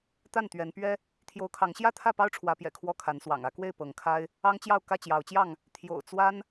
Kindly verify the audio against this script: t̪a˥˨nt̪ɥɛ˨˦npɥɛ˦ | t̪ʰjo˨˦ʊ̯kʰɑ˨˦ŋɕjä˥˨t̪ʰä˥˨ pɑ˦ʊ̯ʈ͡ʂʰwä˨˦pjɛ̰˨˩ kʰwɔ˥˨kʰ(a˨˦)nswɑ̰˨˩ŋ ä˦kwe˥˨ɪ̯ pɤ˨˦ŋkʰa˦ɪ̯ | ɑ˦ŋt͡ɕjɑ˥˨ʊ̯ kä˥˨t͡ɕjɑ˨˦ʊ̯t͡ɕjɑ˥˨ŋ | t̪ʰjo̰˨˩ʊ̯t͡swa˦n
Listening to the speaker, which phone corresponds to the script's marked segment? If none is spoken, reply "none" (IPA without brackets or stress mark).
a˨˦